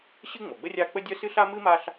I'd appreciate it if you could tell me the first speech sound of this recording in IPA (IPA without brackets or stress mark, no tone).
ɕ